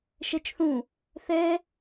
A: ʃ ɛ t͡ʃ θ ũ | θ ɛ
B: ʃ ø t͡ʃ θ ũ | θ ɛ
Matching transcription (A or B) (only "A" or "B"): A